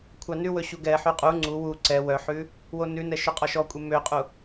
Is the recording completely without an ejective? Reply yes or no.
no